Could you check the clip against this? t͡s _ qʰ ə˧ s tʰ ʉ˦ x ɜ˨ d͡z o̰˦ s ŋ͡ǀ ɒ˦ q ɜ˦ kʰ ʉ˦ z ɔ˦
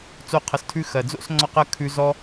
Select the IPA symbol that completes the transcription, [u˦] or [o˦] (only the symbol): o˦